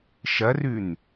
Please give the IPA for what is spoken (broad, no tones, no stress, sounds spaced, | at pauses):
ʃ ɐ r ʉ n